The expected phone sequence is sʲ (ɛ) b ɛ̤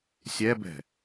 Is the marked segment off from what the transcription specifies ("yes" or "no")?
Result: no